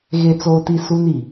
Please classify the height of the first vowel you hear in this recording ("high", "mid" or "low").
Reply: mid